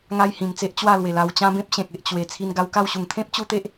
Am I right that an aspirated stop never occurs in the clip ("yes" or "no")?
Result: no